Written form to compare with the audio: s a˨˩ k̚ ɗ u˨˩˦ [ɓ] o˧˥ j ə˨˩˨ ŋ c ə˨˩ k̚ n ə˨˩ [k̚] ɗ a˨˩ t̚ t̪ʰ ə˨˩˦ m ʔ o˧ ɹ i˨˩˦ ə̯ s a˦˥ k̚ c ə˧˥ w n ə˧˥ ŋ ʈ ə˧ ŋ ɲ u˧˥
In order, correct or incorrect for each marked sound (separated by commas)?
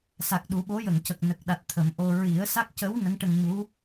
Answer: correct, correct